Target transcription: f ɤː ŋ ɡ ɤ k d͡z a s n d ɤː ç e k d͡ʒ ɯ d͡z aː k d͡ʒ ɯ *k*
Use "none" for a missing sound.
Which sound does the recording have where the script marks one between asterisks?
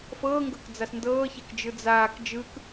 k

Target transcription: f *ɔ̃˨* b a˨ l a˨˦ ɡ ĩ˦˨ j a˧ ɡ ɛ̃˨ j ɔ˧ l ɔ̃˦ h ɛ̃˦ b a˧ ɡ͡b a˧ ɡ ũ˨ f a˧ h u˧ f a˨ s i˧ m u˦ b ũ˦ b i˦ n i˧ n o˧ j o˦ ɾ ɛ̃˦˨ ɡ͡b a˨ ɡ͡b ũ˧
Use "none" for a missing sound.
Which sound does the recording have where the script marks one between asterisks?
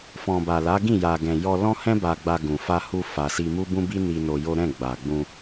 ɔ̃˨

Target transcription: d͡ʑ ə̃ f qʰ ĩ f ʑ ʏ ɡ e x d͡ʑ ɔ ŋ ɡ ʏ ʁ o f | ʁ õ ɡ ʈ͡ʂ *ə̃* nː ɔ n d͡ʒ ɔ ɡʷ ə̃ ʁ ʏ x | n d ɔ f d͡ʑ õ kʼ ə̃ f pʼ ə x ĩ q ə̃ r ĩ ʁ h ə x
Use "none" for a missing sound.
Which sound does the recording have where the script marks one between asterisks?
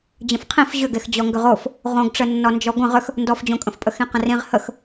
ə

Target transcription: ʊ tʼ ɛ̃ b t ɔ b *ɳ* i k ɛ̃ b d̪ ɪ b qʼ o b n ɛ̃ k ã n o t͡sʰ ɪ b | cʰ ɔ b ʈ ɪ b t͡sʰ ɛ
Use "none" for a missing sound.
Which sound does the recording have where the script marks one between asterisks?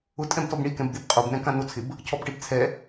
ɳ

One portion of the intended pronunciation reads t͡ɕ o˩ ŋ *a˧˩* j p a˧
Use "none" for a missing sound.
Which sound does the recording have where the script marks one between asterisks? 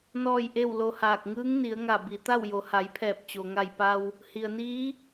a˧˩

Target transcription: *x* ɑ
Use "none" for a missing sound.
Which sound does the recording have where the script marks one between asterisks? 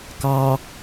k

